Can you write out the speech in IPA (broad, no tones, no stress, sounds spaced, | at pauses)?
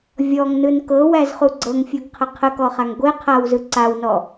vʲ ɔ ŋ n ɯ n k ɤ w æ z χ u ɡ͡ǀ ɤ ŋ fʲ u ɡ qʰ ə qʰ ə k ɔ χ a ŋ ɡʷ e qʰ a w z ɯ ǀ a w n ɔ